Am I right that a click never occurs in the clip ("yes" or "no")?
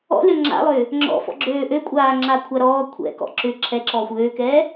no